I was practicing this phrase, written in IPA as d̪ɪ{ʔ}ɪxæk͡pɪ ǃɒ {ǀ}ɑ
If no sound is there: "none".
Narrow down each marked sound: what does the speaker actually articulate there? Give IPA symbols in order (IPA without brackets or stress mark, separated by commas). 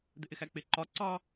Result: ʔ, ǀ